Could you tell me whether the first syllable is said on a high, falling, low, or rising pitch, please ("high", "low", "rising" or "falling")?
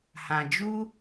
low